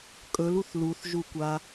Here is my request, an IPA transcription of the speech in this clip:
kʼ ɵ l u θ l u θ ʒ u kʷ a

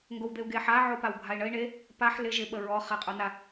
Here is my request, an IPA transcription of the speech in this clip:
ŋ ɡ o w d̪ e u̯ ɡ e ħ a ʕ o p a w bʱ a i̯ ɳ ə i̯ ɳ e | p a ħ l ɪ ʒ ɪ ɓ ə ɹ ɔ χ e qʼ o n a

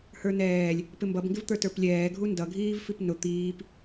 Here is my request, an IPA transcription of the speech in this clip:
h ə˞ n ɛː lʲ | p ɪ m b ʌ b ŋ ɡ ɪ v t̪ ə˞ t ə˞ p lʲ ɛː ɡʱ u n d ʌ ɡʱ iː v f i p n ʊ t̪ iː p

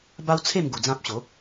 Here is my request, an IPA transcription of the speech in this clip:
b a˦ w t͡sʰ e˥˧ m ɡ u˧ d͡z ã˦ p̚ ɕ o˨˦

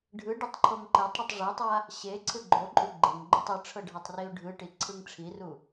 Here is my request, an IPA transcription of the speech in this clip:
ɖʱ ɯ ɖ ɛ tˤ ǃʰ o ŋ ǃ ɛ tˤ ɽ u tˤ ʐ ɛ tˤ a | ɕ e ǀʰ ɯ ɡ͡ǃ o ǃʼ u ɡ͡ǃ e ŋ ɡ͡ǃ o tˤ ɯ ʈ͡ʂʰ ɤ ɖʱ a tˤ r i ʊ̯ ɖʱ ɯ ʈ i ǀʰ ɯ ŋ ʈ͡ʂʰ i r u

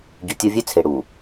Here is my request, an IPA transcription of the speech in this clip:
ɟ u˨ tʲ o˦ vʲ ø˦ t͡sʰ e˨ ɽ u˨

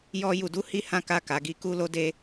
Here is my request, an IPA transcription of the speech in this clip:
j ɔ˦ j u˧ d u˦ h i˦ h ã˦ k a˦˨ k a˨˦ ɡ i˦ k u˦ l o˦ d e˦

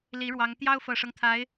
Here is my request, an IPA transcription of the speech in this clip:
l i˧˥ ɻ w ɑ˧˥ ŋ t̪ j ɑ˥ ʊ̯ f ɤ˨˩ ʂ ɤ˦ ŋ t̪ʰ a˧˥ ɪ̯

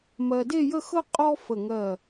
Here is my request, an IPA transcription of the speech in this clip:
m ɜ˧ d e˥˧ j ə˥˧ x ɤ˥ qʼ ɔ˥ f ə˧˩ ŋ ɜ˧˩

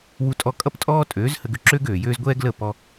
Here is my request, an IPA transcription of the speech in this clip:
w u˧ tʼ ɔ˧ kʼ ʌ˦ p tʼ ɔː˦ tʼ øː˨˦ z h ə˧ ɡ ø˧ ǁ øː˦ ɡ øː˨ j øː˦ z ɡʷ ɛː˦ ɡ l ə˦˨ p ɔ˧

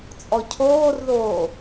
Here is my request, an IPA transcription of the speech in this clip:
t͡sʼ ɔ cʰ oː r ð oː

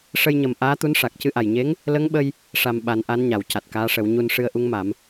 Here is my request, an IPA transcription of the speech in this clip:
ʂ ə˧ j ɲ ə˨˩ m ʔ aː˧˥ t̪ u˧˥ n ʂ a˨˩ k̚ c ɨ˧ ʔ a˨˩ j ɲ e˧˥ ŋ | l ə˧˥ ŋ ɓ ə˧ j | ʂ a˨˩ m ɓ a˨˩˦ n ʔ a˧˥ n ɲ a˨˩˨ w c a˨˩ t̚ k aː˧˥ ʂ ə˨˩˦ w ɲ u˧ n ʂ ɨ˧ ə̯ ʔ u˧˥ ŋ m a˨˩˦ m

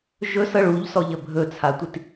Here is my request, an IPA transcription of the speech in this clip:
ʒ ɵ s ɤ ɭ u ʎ s ɔ ʎ ə bʱ ɵ t͡sʰ a tʷ i t

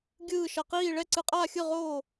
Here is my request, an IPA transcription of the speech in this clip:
ɡʲ ɯː˥˨ ʃ ʌ˧ q iː˥˨ ɭ ɛ˥˨ ǀ ɯ˧ qʼ aː˥˨ xʲ ɯ˥˨ ʁ oː˥˨

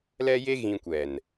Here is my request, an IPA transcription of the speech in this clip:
l ɛ˦ j e˦ ɣ ĩ˧ kʷ ɛ˨ n

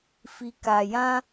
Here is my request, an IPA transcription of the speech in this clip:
f i˧ k a˧ j ã˦

